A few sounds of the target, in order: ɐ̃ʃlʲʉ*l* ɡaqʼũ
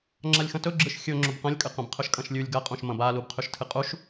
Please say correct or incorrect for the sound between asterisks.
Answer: incorrect